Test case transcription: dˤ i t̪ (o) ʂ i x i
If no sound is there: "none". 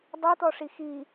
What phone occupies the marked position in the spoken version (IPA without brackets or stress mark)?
ɔ